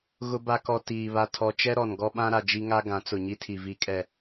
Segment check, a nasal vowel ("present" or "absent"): present